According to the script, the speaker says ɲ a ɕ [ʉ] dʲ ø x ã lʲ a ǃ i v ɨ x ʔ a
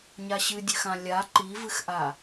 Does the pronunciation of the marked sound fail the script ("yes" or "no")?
yes